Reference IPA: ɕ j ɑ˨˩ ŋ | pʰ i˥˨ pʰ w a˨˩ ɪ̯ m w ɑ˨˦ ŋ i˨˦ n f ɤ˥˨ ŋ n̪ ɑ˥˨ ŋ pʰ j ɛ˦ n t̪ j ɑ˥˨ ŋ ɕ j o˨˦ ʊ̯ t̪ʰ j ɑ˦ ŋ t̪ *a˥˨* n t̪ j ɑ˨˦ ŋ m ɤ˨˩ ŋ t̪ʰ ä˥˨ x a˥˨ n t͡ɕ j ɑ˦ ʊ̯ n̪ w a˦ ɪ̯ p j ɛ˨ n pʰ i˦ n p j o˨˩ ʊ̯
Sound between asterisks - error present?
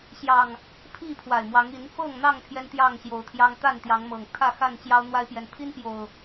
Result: no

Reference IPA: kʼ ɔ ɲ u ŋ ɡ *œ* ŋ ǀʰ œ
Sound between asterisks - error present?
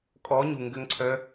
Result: yes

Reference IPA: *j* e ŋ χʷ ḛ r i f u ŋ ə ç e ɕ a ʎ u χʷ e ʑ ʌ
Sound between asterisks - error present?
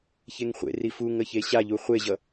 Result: yes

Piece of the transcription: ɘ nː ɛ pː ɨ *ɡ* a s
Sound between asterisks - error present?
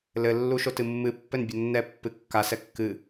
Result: yes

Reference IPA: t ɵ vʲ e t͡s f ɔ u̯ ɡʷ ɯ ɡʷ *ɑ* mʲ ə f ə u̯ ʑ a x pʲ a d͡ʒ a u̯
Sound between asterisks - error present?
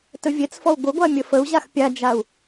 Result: yes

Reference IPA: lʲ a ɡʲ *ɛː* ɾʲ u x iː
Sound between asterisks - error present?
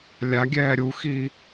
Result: no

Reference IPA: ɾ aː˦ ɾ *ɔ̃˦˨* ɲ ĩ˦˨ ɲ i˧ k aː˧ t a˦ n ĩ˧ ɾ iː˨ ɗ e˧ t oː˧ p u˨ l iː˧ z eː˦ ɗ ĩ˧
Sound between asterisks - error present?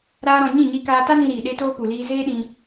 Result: yes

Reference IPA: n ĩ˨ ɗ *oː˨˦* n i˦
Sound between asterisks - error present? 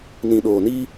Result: yes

